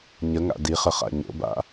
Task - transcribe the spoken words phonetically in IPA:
ɲəŋa̰ diχə χa̰ɲo̰ba̰

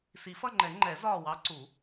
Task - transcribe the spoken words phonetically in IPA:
si˨˩˦fʌ˦˨ŋ͡ǃɛ˨˩˦ ŋ͡ǃɛ˨˩˦ zɒː˦˨wɑ˧˥ǀu˨˩˦

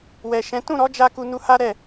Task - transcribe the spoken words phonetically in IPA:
wɛ˨ʃɛ̃˨˦ tũ˦˨ɾɔ˨˦d͡ʒa˧ ku˧nu˧ha˦ ɾɛ˦˨

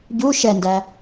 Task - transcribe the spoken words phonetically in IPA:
ɟu ʃɛndæ

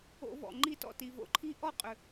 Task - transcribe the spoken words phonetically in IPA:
o̰˧vɔ̰˩ ŋ͡ǃi˧˩tɔ̰˧˩ti˩ vo̰˧ǃʰi˧ ʔɔ˥˩qʼʏ˩

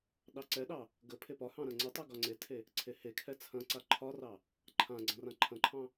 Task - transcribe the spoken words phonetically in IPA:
ɗɑǀɛɗɑ | ɡə pʰepɒhɑ̃ ɾɐ̃ŋ͡ǀətˤɛ ɡɒŋ͡ǀetʰe | ǀʰehekʰɛ t͡sʰɐ̃ǀa ǃʰɒrɑ | ǃʰãɡ͡ǀɐ̃ rãǃʰɐ̃ǃʰɑ̃

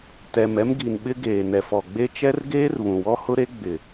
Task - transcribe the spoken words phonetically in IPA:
tɛ˨mɛ˦mɡi˨nɓɪ˦ ɡeː˨ nɛ˨fɔ˨ɡ͡be˦ t͡ʃɛ˦rɡeː˦rβũ˨wɔ˦ hʊ˦ɾe˦ɡ͡bɪ˨

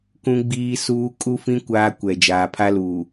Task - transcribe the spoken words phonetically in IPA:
kũ˦ɡ͡biː˦suː˦ kʼu˦fĩ˦ kʷaː˦kʷɛ˨ d͡ʒaː˨pʰa˦luː˨

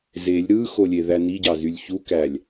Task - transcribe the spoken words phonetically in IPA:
zelʲ ɾɯxolʲeðæ niɟɑzylʲ çukælʲ

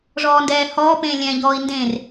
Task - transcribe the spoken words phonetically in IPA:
ʐɔːndɛːhɔːpẽː lʲɛ̃ʎɔːi̯ ndẽr

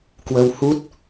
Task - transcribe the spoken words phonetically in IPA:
kwə˧whu˦˥t̚

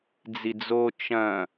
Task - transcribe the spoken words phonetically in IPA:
d͡zid͡zo t͡ʃɐ̃

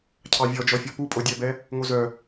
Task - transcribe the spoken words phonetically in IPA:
cʰɑvʲɔd͡ʒɔfʲɔ pupʼodʲæbɛ | ŋozœ

